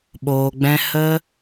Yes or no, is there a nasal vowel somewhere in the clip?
yes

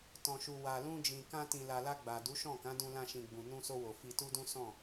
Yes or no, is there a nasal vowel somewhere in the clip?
yes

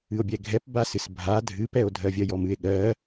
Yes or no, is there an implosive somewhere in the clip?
yes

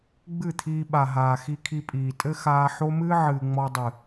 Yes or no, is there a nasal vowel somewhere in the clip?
no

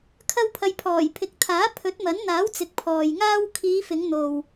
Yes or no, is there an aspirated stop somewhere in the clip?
yes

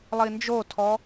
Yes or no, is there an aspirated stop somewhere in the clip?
yes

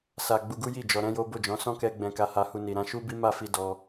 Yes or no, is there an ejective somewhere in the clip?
no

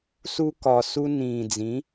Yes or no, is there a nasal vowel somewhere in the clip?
yes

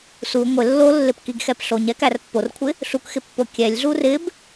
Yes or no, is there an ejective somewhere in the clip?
no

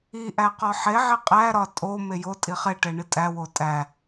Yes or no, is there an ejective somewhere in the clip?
yes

